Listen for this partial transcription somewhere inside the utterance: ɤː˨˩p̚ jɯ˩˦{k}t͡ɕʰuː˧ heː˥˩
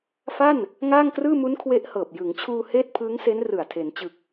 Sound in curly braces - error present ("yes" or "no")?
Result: yes